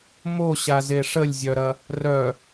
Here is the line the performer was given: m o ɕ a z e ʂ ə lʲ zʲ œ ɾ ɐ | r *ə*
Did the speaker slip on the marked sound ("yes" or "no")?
yes